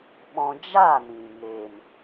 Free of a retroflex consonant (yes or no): yes